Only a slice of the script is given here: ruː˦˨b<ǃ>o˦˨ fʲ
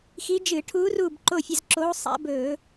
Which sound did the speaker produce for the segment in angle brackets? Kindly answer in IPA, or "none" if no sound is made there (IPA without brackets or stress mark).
ǃ